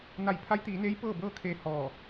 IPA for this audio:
n a˧˩ j pʰ a˧˥ j t̪ iː˩˧ n eː˧˥ j p ɤː˥˨ b ɤː˥˨ kʰ eː˧ h ɔː˧˩

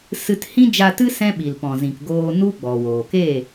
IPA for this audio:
s ɨ˧ t h ĩ˦ d͡ʒ a˧ t ɨ˦ s ɛ̃˦ ɓ i˨ l p ɔ̃˨ z ĩ˨ k ɡ oː˧ n u˦ ɡ͡b ɔ˨ w oː˨ k e˦˨

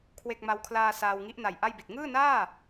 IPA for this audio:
kʰ w e˥˩ k̚ m a˧ w kʰ l aː˧ s aː˧ w ŋ i˦˥ ʔ n a˨˩ j ʔ a˥˩ j b i˨˩ t̚ ŋ ɯː˥˩ n aː˥˩

